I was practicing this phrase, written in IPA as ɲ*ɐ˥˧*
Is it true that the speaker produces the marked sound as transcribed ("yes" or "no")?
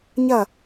yes